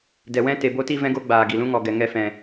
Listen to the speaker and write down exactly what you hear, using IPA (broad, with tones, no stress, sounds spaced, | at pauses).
d ɛ˨ w ɛ̃˦ t e˨ b o˦ t i˦ v ɛ̃˦ ɡ o˦ ɡ͡b aː˨ ɡ i˨ l ũ˦ ŋ ɔ˨ ɡ ɛ˨ ŋ ɛ˧ f ɛ̃˨